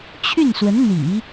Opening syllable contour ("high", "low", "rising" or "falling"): falling